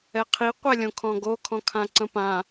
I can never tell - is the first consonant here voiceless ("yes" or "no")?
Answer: yes